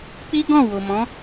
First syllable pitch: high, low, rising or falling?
high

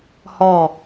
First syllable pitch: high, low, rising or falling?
falling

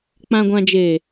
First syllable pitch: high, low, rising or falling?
low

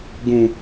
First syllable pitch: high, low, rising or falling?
high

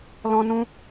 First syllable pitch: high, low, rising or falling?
high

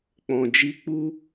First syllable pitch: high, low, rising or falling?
low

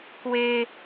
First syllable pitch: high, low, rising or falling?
high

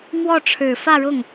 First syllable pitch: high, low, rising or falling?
falling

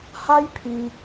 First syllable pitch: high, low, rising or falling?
high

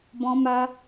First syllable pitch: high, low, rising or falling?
high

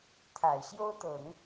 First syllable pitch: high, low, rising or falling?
low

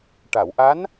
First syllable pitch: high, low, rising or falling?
low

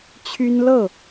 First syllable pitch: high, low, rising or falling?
high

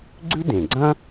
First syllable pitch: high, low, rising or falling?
high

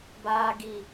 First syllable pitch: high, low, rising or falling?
low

